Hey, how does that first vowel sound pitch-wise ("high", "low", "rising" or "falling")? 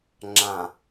low